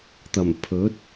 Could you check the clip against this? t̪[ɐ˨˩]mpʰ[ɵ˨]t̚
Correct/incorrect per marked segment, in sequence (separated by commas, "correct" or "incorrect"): correct, incorrect